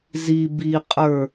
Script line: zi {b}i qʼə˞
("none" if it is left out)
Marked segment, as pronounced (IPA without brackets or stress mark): b